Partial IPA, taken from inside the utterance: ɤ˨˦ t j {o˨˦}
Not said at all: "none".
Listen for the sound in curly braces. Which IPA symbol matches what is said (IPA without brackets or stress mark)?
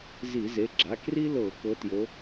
o˨˦